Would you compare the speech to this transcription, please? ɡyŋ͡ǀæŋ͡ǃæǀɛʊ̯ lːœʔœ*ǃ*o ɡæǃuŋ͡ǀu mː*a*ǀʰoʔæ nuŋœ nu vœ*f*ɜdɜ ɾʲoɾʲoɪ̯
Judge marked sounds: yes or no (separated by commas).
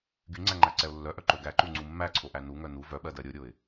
yes, no, no